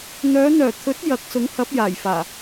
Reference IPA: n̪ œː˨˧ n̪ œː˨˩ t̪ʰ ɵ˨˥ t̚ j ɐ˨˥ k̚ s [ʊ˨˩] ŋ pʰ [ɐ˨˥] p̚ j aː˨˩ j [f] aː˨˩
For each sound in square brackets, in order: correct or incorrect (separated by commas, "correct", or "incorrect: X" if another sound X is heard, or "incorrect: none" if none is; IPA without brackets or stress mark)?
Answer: incorrect: ʊ˨˥, correct, correct